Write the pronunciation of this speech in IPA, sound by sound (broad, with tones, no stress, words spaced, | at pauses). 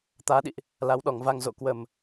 t̪aː˨˦ɗḭ˧˨ʔ | la˨˦wɗɔ˨˩ŋva˧ŋ zo̰˧˨ kwə˨˩m